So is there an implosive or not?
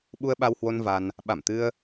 yes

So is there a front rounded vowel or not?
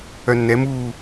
yes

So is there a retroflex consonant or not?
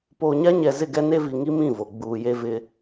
no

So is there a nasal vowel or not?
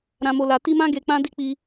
yes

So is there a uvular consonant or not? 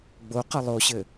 yes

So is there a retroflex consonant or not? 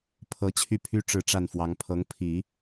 yes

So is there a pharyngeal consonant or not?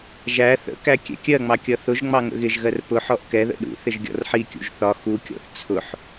yes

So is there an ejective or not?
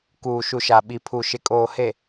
yes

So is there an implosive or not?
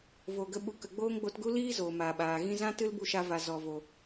yes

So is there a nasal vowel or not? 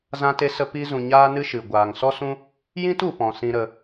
yes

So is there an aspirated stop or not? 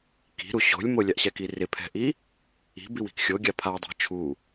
yes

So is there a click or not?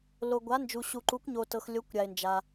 yes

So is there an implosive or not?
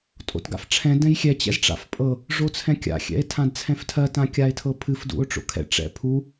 no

